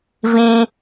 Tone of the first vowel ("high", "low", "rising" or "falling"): high